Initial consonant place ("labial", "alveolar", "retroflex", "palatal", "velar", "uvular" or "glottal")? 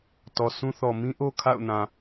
alveolar